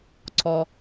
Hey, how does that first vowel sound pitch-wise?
low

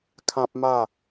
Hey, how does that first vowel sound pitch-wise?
high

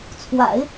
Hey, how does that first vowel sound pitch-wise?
low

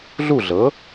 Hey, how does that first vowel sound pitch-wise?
falling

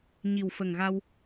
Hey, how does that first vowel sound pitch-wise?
low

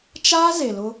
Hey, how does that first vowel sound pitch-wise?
high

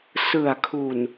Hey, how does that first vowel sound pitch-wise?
low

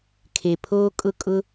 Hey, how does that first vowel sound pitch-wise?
low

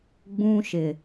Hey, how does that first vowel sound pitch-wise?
high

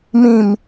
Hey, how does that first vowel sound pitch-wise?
low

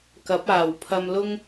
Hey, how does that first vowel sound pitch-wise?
rising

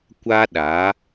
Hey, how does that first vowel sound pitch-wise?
high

